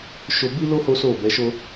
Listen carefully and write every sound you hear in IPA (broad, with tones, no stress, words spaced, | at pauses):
ʃo˧bi˦lo˦ ho˦so˦˨ bɛ˨˦ʃo˦